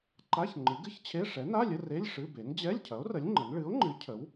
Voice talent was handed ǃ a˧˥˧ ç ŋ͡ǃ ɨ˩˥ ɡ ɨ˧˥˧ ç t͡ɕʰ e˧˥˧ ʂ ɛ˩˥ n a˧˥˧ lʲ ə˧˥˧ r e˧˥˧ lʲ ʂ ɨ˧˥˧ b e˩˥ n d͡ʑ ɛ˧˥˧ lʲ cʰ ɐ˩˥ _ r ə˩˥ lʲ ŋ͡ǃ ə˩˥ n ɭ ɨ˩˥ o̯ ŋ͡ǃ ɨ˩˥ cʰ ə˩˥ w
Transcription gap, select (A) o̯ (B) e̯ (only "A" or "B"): A